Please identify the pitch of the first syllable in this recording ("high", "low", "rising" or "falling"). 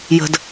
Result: low